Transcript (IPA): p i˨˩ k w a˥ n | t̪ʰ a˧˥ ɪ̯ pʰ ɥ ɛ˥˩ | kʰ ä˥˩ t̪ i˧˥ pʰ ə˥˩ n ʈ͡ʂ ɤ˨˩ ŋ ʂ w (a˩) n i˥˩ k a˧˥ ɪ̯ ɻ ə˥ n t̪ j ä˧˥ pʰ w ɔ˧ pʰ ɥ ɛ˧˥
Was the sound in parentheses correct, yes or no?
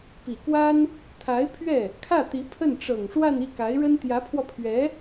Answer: no